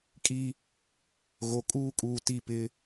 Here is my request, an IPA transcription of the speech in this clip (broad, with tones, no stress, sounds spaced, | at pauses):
kʼ i˦ | ɣ o˨ kʼ uː˦ kʼ uː˨ t i˦˨ p ɪ˦